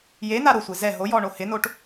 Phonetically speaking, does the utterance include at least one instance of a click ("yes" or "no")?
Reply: no